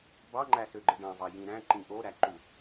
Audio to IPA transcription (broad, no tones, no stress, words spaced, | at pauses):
bɑŋ͡ǃæsøɡ͡ǃɯ ɖɑ̃vɑ jĩɾæ̃ ǃĩʔoɾæ ǃu